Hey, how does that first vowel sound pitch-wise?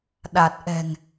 low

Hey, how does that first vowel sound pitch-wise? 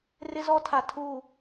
high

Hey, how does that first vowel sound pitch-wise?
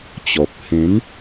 low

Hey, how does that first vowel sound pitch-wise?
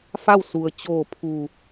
falling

